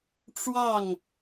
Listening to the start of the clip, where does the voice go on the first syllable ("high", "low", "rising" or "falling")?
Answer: falling